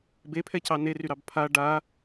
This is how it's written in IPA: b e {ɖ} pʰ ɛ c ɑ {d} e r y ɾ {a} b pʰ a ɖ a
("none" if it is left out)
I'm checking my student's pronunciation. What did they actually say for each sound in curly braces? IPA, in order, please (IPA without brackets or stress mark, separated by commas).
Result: none, n, ɑ